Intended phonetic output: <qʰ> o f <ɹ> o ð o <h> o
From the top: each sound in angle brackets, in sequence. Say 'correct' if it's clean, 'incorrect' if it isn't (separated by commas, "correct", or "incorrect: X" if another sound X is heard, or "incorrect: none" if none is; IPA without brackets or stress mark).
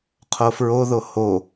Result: correct, correct, correct